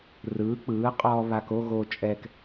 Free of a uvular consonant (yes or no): no